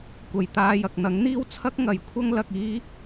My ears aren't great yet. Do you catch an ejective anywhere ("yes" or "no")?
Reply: no